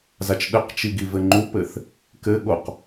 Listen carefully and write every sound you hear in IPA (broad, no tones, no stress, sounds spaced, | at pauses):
z a t͡ʃ ɗ ɘ q t͡ʃ i ɡ i v ɘ ŋ͡ǃ u p ɘ θ | k ɘ ɠ o q